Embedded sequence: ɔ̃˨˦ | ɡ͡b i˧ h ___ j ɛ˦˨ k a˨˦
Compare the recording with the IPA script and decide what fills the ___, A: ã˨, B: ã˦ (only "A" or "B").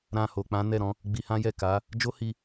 B